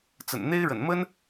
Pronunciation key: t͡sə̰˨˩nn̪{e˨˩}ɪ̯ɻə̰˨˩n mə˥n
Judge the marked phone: incorrect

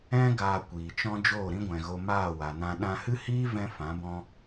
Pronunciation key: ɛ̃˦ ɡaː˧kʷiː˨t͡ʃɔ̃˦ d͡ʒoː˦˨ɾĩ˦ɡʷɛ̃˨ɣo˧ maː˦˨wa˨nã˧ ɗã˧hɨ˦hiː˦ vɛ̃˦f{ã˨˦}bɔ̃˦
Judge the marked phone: correct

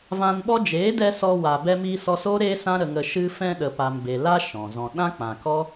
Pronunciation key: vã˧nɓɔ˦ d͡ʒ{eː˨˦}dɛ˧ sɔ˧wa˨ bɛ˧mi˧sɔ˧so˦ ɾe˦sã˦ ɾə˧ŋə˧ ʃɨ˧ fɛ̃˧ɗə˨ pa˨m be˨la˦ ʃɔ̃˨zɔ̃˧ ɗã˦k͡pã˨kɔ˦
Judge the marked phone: correct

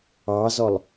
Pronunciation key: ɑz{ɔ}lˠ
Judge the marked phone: correct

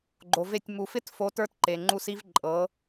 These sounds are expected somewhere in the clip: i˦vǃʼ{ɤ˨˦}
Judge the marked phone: correct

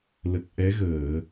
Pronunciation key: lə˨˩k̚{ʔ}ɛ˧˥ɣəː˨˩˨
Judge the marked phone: correct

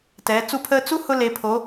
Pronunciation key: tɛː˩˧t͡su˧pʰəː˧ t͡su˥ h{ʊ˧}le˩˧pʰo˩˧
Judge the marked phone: correct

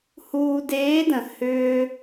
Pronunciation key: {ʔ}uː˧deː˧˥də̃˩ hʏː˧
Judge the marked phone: incorrect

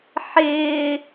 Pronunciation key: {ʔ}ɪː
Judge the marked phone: incorrect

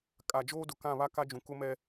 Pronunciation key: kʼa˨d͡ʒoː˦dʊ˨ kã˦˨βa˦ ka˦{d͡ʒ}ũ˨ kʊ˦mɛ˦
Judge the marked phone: correct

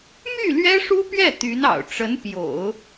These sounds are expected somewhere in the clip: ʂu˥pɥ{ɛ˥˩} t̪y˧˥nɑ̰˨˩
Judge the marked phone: correct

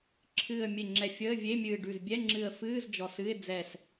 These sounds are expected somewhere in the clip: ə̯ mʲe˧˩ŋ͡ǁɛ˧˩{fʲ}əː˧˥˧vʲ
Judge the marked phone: correct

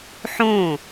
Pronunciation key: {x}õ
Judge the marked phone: incorrect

